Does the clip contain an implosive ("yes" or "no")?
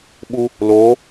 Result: yes